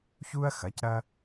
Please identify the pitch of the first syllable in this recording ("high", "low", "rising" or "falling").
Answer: high